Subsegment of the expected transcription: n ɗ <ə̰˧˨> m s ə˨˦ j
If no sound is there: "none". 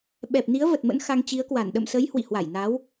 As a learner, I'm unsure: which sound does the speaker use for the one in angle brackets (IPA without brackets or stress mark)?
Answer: ə̰˧˨